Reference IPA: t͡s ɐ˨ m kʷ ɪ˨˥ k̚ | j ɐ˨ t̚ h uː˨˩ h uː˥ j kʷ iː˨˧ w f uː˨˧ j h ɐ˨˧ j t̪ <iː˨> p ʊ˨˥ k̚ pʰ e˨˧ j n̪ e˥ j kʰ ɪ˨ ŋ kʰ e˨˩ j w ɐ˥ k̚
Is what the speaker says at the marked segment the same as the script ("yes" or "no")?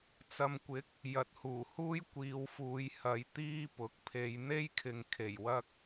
no